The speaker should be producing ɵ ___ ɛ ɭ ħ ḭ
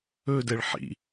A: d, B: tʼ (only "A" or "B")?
A